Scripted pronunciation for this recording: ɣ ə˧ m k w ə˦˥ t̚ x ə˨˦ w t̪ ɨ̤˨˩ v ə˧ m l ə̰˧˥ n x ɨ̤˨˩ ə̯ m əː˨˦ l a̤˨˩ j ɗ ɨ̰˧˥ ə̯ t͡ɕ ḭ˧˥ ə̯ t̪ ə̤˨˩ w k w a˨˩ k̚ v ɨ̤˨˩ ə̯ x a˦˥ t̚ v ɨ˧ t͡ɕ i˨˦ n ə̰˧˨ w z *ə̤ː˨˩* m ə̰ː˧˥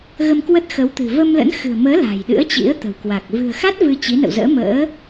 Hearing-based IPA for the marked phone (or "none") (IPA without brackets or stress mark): ə̰ː˧˥